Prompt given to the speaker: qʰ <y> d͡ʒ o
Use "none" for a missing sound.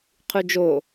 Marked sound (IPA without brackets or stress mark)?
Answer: y